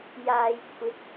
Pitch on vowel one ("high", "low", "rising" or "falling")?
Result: low